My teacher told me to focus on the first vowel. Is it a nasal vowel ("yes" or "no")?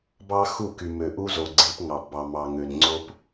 no